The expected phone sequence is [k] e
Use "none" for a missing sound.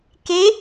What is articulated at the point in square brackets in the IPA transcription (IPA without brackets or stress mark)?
k